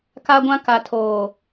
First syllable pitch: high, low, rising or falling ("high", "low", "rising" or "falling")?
high